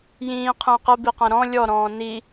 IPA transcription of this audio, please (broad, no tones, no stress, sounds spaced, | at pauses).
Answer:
j ĩː qʰ ə̃ː q ə b i q ɐ̃ ɾ ɔ̃ lʲ ɔ ɾ ɔ̃ː n i